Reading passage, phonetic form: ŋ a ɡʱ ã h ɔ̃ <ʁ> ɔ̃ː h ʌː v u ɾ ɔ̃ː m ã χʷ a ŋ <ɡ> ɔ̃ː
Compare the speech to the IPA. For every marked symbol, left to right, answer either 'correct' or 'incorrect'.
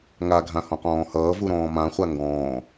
incorrect: q, correct

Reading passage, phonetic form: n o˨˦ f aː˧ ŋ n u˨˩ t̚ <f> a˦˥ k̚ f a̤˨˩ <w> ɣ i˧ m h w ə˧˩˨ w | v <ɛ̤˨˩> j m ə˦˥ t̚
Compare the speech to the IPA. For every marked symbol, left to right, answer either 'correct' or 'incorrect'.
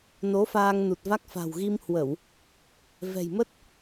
incorrect: v, correct, correct

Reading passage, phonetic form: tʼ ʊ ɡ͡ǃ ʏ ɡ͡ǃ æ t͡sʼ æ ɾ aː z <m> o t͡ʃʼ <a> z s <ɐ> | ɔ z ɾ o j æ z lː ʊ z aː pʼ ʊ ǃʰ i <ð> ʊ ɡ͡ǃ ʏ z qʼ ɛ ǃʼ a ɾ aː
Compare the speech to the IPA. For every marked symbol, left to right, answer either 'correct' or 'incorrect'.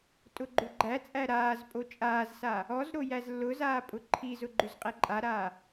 incorrect: pʼ, incorrect: aː, incorrect: a, incorrect: z

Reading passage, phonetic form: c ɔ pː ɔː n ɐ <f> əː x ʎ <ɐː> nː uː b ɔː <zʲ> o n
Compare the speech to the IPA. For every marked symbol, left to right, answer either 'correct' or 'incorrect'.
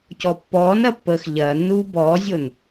incorrect: pː, correct, correct

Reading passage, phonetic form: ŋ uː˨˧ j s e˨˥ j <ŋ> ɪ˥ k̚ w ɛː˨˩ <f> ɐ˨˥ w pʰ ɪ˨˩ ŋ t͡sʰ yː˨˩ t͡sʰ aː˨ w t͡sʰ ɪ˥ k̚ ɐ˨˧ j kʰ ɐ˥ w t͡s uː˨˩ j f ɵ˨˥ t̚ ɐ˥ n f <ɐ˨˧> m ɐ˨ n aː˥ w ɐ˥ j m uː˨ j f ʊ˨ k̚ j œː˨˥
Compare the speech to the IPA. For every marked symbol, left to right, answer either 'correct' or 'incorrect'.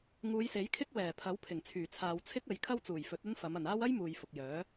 incorrect: kʰ, incorrect: pʰ, correct

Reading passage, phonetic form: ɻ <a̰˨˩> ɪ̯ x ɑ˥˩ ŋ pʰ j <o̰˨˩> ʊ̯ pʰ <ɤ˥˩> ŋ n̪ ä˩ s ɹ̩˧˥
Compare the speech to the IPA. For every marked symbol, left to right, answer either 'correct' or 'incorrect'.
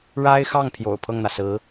incorrect: a˥, correct, correct

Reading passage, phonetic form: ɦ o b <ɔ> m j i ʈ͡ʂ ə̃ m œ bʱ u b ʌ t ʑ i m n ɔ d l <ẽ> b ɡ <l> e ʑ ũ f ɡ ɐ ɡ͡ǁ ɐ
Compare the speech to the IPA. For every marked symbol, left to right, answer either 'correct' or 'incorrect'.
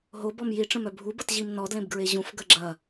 correct, correct, incorrect: ɹ

